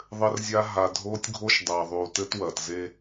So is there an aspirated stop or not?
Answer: no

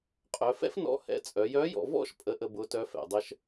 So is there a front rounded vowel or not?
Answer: yes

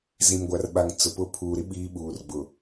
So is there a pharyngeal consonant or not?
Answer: no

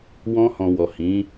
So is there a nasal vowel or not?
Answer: yes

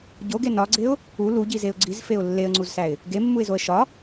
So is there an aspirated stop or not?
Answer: no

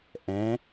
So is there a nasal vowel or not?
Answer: yes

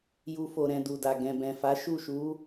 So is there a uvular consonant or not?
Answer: no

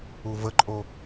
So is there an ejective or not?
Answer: yes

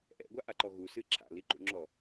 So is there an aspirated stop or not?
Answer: yes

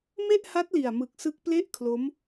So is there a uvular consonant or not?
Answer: no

